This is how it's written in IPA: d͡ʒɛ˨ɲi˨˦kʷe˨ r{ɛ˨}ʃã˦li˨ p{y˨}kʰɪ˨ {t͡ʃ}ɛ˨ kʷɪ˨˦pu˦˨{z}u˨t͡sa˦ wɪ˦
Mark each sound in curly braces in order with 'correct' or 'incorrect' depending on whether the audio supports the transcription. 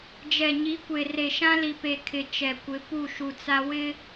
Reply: incorrect: e˨, incorrect: e˨, correct, incorrect: ʃ

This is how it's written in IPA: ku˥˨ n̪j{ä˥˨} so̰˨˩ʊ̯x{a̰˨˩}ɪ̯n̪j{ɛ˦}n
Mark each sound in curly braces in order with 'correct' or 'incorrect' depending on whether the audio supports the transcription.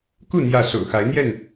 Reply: correct, incorrect: a˨˦, incorrect: ɛ˥˨

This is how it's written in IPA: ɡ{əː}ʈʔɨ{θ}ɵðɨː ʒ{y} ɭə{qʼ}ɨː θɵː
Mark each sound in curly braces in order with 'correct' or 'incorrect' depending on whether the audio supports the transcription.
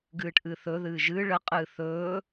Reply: incorrect: ɨː, correct, incorrect: ɨ, correct

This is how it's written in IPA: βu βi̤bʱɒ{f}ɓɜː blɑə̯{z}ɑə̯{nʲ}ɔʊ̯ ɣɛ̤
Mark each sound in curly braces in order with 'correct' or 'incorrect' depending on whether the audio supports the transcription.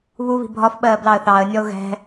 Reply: correct, incorrect: θ, correct

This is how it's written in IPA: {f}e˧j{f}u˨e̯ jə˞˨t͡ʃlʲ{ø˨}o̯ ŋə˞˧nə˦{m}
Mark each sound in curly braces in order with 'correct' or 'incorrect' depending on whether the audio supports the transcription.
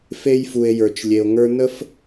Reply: correct, correct, incorrect: e˨, incorrect: f

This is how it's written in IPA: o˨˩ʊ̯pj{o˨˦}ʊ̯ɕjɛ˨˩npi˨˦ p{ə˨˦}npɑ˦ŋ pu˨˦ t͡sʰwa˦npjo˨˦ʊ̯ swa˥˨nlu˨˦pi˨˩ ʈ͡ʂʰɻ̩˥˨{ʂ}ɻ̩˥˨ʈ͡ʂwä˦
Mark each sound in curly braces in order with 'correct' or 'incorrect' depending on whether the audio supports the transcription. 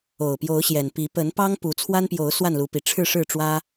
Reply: correct, correct, correct

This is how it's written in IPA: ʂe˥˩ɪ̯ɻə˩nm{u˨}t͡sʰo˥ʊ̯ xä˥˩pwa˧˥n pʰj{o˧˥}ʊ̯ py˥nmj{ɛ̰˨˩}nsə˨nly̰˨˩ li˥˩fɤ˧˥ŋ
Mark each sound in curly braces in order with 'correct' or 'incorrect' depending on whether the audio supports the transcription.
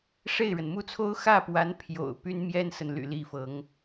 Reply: incorrect: u˥, incorrect: o̰˨˩, incorrect: ɛ˥

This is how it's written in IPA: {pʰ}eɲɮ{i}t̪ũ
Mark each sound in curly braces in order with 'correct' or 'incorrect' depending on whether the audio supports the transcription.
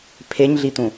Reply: correct, correct

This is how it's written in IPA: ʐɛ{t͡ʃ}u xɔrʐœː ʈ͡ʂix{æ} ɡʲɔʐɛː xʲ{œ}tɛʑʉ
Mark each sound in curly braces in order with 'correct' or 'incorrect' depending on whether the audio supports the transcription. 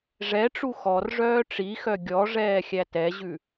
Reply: incorrect: ʈ͡ʂ, incorrect: œ, incorrect: æ

